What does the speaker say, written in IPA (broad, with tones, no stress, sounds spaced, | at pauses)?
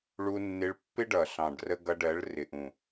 ɭ u˧ nː ɪ˧ ɭ pː ɪ˦ ɖ ʌ˨ ɬ ɑ̃˨ ɖ r ə˧ ɡ ʌ˧ ɖ ɜ˨˦ ɭ r ɪ˨ ʔ ũ˨